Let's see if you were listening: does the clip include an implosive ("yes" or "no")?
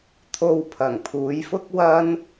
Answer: no